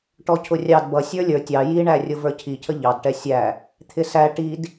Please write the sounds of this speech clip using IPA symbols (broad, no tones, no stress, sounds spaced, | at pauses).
ʈ ɔ cʰ ʊ rʲ ɑ d b ʌ sʲ ə˞ lʲ ə˞ tʲ ɑ j i ɳ æ rʲ ʊ v ə˞ cʰ i cʰ ə ʎ ɑ d ʈ ɛ sʲ æ | t̪ʰ ɪ s æ ʈ i d